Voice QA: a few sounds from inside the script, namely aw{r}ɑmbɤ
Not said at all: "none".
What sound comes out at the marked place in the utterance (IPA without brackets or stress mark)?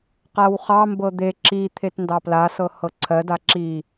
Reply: χ